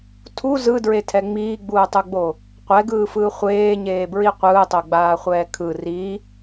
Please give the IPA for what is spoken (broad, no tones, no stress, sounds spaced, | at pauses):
tʰ u z ɯ d ɹ e tʰ ɛ ŋ͡m iː ɡ͡b uː tˤ u ɡ͡b o | qʷ ɛ ɡ ɯː f ɯː χʷ eː ɲ eː b ɹ i qʷ ɯː tˤ o ɡ͡b aː χʷ ɛː kʰ ɯ r i